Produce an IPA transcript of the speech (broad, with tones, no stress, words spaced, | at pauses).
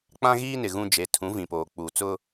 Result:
k͡pã˦ɣiː˦nɪ˨ ɣũ˦d͡ʒe˨˦ tʰũ˨˦vĩ˨poː˨ k͡puː˨t͡sʊ˦